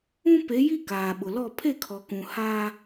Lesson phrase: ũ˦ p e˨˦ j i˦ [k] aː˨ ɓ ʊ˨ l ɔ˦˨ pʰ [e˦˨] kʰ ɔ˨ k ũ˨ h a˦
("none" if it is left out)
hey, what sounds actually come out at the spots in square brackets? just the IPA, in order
k, e˦˨

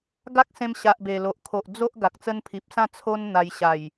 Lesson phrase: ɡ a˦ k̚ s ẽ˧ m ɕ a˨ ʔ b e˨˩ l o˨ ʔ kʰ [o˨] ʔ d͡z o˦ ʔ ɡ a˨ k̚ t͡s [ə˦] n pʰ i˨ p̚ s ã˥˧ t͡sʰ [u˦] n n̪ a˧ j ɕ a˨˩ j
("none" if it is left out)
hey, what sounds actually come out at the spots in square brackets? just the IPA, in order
o˨, ə˦, o˦

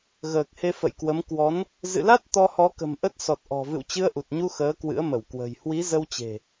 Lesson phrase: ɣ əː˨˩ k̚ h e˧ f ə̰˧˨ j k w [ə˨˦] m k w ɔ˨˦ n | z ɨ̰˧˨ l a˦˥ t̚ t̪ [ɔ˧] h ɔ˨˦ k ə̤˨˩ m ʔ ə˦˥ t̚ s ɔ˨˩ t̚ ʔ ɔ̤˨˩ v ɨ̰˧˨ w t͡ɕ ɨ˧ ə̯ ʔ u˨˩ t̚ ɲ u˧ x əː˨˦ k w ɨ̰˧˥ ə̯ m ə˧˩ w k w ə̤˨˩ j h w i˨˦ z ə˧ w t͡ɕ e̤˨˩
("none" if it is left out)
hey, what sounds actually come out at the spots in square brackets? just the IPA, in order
ə˨˦, ɔ˧

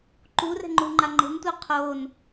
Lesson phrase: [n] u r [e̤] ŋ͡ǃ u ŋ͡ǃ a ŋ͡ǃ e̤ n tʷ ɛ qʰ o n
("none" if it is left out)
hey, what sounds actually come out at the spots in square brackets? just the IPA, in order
ǃ, ɛ̤

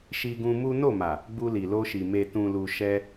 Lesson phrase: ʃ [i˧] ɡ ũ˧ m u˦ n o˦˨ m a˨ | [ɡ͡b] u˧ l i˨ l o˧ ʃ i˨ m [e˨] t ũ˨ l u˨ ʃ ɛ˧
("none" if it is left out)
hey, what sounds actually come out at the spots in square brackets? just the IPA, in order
i˧, ɡ͡b, e˨

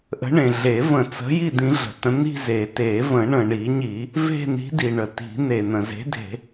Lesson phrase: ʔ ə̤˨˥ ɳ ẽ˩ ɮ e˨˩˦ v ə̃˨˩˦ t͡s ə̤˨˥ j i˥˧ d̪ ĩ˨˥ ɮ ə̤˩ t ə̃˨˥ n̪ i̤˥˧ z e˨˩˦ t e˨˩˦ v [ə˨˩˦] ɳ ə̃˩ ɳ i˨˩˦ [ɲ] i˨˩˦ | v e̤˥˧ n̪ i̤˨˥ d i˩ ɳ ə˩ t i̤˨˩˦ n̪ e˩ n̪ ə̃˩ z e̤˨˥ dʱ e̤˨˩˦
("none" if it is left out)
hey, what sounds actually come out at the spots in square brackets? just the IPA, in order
ə̃˨˩˦, ɲ

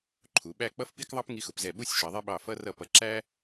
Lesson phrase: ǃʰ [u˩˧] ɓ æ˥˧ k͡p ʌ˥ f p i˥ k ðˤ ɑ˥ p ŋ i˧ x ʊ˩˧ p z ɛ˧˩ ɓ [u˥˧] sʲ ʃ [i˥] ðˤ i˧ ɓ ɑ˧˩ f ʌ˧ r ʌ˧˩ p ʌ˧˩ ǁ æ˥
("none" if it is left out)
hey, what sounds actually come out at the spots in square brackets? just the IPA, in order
u˩˧, u˥˧, i˩˧

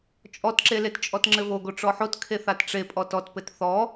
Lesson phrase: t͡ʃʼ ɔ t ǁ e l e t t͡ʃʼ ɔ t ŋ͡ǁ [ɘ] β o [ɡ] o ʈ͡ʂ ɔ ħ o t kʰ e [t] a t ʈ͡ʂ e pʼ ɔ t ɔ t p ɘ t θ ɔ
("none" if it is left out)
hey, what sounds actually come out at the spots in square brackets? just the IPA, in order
ɘ, ɡ, θ

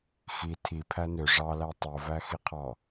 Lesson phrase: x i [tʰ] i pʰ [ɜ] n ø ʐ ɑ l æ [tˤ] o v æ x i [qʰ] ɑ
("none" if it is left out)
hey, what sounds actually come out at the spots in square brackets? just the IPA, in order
tʰ, æ, tˤ, qʰ

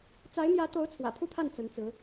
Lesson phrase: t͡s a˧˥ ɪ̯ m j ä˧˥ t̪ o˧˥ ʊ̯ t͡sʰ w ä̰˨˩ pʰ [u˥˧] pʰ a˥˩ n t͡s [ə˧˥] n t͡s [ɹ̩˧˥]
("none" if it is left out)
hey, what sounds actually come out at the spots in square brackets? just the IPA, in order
u˥˧, ə˧˥, ɹ̩˧˥

